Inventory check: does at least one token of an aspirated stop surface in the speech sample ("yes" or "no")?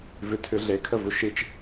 yes